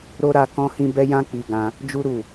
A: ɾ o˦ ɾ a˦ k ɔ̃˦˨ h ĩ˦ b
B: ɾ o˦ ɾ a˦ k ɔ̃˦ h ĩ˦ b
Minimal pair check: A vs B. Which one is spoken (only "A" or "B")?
B